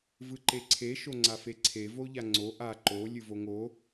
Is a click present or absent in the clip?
present